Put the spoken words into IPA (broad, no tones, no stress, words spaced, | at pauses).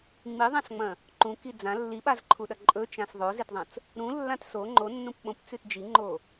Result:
ŋ͡miðˤãsŋ͡mɐ̃ | ǃũki d͡zã lːiɓazǃʰuɗɐ ǃʼɵt͡ʃãs ðˤozetðˤɐ̃t͡s | ɾũlːãt so ŋ͡ǃonːũp ɓõpt͡sʉt d͡ʒiŋ͡ǃo